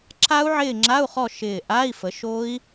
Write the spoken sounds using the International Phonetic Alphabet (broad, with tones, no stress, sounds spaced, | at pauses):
ǁʰ a˦˥ u̯ ʕ ɪː˦˨ ŋ͡ǁ a˧˥˧ u̯ χ ɔ˦˨ ʃ ɪː˦˨ ʔ a˧˥˧ i̯ f ə˨˦ ʃ o˦˥ i̯